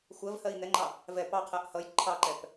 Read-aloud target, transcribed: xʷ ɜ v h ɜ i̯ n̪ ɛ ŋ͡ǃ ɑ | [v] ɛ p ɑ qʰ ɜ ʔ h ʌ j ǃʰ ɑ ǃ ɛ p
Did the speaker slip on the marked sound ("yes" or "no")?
no